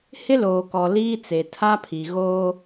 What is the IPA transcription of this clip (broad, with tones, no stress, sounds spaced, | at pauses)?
h ɪ˦ l oː˨ k ɔ˨ l iː˦ t͡s e˨ tʰ a˦ pʰ i˨ ɣ oː˦